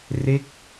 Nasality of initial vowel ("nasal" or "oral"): oral